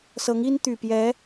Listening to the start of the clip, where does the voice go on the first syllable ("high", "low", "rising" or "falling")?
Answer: rising